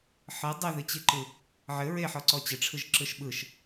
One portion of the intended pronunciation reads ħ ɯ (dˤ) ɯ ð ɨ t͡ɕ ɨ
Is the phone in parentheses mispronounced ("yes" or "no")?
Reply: no